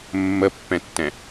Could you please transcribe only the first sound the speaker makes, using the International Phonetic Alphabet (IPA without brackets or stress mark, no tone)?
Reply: mː